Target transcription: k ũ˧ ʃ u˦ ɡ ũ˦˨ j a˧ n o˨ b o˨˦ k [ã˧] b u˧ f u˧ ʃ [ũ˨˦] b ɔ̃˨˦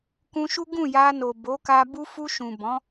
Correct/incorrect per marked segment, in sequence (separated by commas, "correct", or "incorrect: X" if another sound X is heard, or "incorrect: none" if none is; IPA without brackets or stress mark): incorrect: a˧, incorrect: ũ˨